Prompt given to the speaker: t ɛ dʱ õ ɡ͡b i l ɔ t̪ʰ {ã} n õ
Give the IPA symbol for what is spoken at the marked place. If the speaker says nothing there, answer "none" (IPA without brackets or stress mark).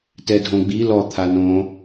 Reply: a